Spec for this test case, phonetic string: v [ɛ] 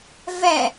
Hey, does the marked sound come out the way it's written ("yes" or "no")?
yes